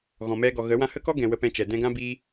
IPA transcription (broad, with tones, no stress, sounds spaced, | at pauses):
ɣ ɔ̃˨ m ɛ˧ ɡ ɔ˨ ɣ ə˨˦ w ã˧ h ə˦ k ɔ˦ ɡ ɛ̃˨ w ə˧ p ɛ̃˧ t͡ʃ ɛ˨ d ɛ̃˧ ɡ ã˦ b iː˦